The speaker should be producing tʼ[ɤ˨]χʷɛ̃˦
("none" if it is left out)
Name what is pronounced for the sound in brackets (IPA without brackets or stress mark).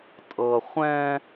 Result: ɤ˨